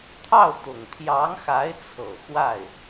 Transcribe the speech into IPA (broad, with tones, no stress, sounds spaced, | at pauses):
t̪ʰ ɑ˥˩ ʊ̯ t̪ ʊ˨˩ ŋ t̪ʰ j ɑ˧˥ ŋ x a˧˥ ɪ̯ t͡sʰ ɤ˨˩ x w a˥˩ ɪ̯